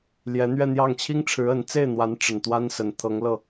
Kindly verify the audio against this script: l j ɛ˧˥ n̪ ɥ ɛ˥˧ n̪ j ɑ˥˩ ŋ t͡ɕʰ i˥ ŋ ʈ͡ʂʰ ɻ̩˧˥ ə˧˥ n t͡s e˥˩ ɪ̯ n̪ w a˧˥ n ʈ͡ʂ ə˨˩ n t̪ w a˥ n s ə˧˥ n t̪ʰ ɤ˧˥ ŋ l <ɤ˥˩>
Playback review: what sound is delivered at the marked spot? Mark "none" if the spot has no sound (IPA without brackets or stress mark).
ɤ˥˩